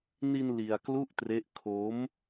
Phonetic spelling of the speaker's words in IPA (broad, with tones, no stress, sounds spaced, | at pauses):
n i˧ n l i˧ a̯ k l u˥˩ ʔ t r e˦˥ ʔ kʰ o˦˥ m